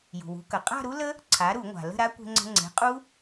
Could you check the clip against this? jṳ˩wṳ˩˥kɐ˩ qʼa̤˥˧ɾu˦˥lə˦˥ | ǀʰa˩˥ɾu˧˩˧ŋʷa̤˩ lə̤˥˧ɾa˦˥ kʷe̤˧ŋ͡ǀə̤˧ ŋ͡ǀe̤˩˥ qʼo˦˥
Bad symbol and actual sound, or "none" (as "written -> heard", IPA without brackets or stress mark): o˦˥ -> u˦˥